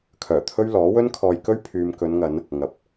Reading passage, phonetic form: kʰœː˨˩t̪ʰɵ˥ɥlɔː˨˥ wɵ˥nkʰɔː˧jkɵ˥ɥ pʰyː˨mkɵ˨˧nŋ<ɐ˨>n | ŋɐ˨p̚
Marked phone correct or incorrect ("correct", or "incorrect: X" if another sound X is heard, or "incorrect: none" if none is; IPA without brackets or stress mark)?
incorrect: ɐ˨˧